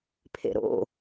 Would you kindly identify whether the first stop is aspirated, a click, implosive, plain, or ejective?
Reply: aspirated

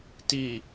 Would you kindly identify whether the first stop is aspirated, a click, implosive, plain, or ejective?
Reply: plain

